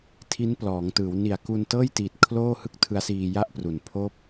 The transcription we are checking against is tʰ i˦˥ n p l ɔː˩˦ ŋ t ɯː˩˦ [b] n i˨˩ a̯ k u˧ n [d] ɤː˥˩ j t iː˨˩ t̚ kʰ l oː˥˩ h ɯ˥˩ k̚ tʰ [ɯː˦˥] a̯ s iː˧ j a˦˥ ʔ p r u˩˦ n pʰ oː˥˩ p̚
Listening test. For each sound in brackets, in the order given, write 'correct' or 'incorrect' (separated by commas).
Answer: incorrect, incorrect, incorrect